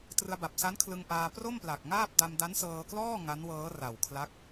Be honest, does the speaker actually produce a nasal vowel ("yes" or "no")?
no